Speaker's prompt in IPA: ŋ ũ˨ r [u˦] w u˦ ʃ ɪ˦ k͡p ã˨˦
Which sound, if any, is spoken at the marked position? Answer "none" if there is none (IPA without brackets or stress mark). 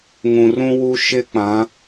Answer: ũ˦